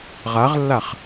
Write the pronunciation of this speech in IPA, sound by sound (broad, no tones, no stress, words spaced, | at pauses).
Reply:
ʁaʁlːaχ